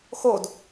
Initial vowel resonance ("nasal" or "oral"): oral